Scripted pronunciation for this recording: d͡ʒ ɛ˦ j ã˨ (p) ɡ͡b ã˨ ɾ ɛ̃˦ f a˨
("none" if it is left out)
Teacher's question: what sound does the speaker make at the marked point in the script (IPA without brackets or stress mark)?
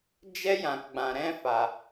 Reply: k